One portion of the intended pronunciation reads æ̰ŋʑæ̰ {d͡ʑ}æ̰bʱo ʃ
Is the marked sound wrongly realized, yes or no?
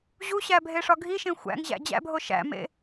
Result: no